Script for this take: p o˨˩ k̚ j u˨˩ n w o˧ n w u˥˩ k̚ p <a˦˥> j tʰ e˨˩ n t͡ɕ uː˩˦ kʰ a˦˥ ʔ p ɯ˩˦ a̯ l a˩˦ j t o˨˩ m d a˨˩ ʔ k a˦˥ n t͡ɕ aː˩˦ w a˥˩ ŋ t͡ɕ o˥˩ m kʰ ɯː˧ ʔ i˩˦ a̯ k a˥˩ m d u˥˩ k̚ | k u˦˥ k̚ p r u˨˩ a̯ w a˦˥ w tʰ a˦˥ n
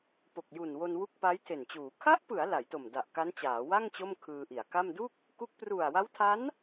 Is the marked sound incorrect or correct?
correct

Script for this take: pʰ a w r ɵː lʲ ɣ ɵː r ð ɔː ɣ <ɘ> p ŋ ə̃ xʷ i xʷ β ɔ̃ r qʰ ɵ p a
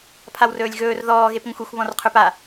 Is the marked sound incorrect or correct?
incorrect: e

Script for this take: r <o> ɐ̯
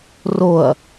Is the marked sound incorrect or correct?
correct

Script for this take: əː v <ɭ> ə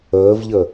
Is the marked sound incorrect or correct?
incorrect: ʎ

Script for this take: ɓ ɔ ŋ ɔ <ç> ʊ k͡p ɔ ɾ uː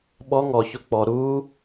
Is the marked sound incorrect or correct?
correct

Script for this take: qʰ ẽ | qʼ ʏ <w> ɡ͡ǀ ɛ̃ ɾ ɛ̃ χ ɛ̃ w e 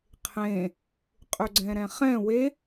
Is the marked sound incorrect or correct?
incorrect: none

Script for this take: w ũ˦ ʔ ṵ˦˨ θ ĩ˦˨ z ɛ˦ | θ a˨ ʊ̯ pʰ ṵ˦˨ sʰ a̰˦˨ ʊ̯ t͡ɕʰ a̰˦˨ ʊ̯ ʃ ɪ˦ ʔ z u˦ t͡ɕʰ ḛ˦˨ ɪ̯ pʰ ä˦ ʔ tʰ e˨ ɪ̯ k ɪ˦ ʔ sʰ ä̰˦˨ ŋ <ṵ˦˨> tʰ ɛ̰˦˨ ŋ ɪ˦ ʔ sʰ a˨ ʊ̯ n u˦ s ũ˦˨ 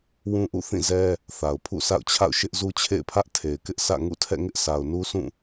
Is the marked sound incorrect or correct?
correct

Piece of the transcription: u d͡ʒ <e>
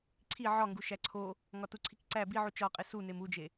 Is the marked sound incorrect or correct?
correct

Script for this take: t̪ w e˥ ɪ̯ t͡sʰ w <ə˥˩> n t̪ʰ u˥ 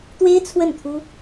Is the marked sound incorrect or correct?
correct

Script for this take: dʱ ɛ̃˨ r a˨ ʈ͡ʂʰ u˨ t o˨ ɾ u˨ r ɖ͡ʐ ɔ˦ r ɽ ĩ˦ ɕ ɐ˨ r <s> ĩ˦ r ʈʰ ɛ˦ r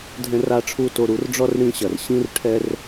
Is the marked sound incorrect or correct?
incorrect: ɕ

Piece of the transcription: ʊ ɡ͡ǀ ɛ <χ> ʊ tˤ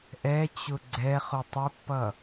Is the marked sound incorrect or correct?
correct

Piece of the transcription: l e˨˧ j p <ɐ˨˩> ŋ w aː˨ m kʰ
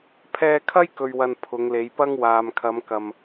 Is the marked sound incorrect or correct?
incorrect: ɐ˥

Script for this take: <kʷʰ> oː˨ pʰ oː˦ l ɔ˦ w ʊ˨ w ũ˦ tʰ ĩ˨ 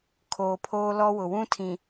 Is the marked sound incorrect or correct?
incorrect: kʰ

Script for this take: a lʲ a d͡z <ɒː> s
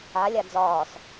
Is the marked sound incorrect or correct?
correct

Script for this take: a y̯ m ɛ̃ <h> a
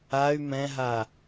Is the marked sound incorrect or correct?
incorrect: ɦ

